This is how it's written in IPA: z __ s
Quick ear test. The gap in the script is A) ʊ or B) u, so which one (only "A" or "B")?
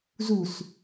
B